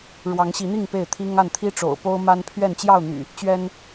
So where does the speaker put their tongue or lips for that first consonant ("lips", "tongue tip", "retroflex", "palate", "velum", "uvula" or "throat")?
retroflex